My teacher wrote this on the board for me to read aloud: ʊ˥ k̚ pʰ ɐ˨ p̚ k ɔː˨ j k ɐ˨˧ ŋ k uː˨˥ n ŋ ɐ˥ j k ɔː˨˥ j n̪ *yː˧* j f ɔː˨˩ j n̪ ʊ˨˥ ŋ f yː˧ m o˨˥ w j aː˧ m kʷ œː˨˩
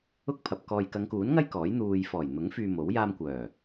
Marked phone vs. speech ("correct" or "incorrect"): incorrect